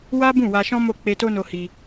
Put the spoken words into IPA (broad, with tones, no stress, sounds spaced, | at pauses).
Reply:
w a˦ b ũ˦˨ w a˧ ʃ ɔ̃˦ m o˦˨ k͡p e˧ t o˦ n o˧ h i˧